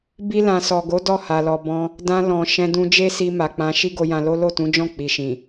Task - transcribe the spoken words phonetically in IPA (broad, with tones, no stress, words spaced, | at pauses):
bi˧lã˨sɔ˨ɡo˨˦ dɔ˦˨ha˨lɔ˨ bɔ̃˧ | dã˧lɔ̃˨ ʃɛ̃˧dũ˧d͡ʒe˦si˧ ma˨k͡pã˧ ʃi˦ɡo˧jã˧lo˦ lo˦˨tũ˨˦d͡ʒɔ̃˦˨ k͡pi˨ʃĩ˨